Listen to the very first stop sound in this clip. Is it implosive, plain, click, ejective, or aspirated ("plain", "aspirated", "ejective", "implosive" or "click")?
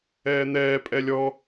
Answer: ejective